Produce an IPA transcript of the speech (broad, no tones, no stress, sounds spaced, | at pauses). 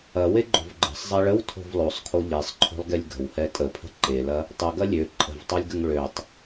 ɐ w e ɡ͡ǃ o̤ v ɡ͡ǃ ə̤ sˤ zˤ ɛ ɭ ə w tʰ o̤ v lˠ o sˤ kʰ o ʎ e sˤ ǃʰ o̤ lˠ ɡ e lʲ ɡ ə̤ w h ɛ tʼ ə pʰ ə̤ ǃ e l ɐ | tˤ ə ɡ ɐ lʲ ø ǃʼ ə̤ v tˤ o lʲ ɡ ə ŋ ɭ ø tˤ